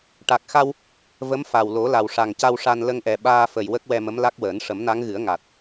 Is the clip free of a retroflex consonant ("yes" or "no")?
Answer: no